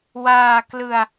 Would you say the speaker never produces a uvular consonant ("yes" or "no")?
yes